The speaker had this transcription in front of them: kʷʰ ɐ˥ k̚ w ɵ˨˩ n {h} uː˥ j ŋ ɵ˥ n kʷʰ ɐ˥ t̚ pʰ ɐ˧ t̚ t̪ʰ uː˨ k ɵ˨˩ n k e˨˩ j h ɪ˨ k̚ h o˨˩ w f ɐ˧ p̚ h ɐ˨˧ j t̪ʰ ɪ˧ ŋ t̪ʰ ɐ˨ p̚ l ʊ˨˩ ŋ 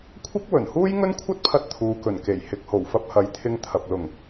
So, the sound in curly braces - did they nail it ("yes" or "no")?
yes